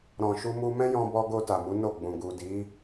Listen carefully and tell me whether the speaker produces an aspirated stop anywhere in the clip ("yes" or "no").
no